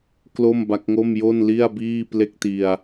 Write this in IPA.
k l o˥˩ m b a˦˥ k̚ ŋ o˥˩ m j o˥˩ n l i˥˩ a̯ b iː˥˩ p l e˥˩ k̚ t i˧ a̯

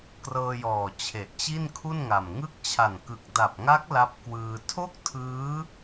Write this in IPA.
k r ɤː˧ j ɔː˨˩ t͡ɕʰ e˨˩ ʔ t͡ɕ i˥˩ n kʰ u˥˩ n ŋ a˨˩ m ŋ ɯ˦˥ k̚ t͡ɕʰ a˨˩ n k ɯ˨˩ k̚ d a˨˩ p̚ ŋ a˦˥ k̚ l a˦˥ p̚ k w ɯː˧ tʰ o˥˩ k̚ tʰ ɯː˦˥

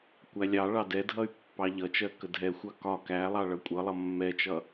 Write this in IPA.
kʷ æ lʲ ɑ ɭ ɑ d ɛ dʱ ʌ y̯ pː ɑ ʎ ʌ t͡ʃ ɜ k ə dʱ ɛ xʷ ɑ k ɒ k æ lˠ ɑ ɭ ʌ kʷʼ ʌ lˠ ʌ mː ɛ t͡ʃ ʌ

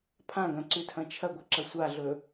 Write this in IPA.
pʰ ã ɡ ɐ̃ ǀ ʉ tʰ ɐ̃ t͡ʃʰ ɐ ɡʷ ɐ ǁ ɐ sʷ a ɮ ɵ

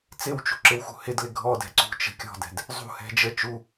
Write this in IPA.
t͡s ɪ w t͡ʃ ṳ ǁ ɪ w x ṳ h ɪ d l ɪ ɡʱ ɔ d ɛ̤ ǀ ṳ t͡ʃ ə̤ kʲ ɔ̤ d ɛ̤ d | zˤ ṳ h ɛ̤ d͡ʒ ə t͡ʃ u

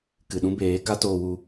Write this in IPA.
k ɨ˨ ɗ ũ˦ b eː˨˦ k a˦ t oː˧ w u˧

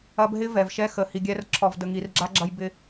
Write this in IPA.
ɐ˧ b ɦ ɪ˦ v ɛ˨ v ʃ ɛ˦ x ə˨ h i˨ ɡʲ ɛ˧ r ǁʰ ɔ˨ v d ə˨ ŋ i˨ r ɡ͡ǁ a˧ ɡ͡ǁ ɐ˧ j b ɪ˧

